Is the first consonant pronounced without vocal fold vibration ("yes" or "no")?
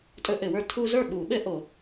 yes